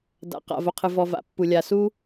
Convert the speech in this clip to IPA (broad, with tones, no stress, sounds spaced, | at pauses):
d a̰˩ q a̰˩ v o˩ qʰ ɨ˩ v ɔ˩ v a̰˩ pː u˩ lʲ a˩ s u˥